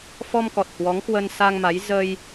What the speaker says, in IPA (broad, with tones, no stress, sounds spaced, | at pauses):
f ɔ˧ m k ɔ˨˩ t̚ h w ɔ˨˦ ŋ k w ə˧ n s a˧ ŋ m a˨˦ j z ə˧ j